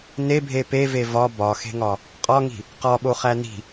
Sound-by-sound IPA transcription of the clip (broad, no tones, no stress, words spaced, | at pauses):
nebʱe peve vɒ bɒxe̤ŋɒ | qʼɒŋi̤ | qɒɓoχæ ni̤